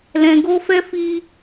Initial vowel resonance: nasal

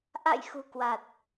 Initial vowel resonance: oral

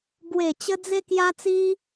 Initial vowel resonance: oral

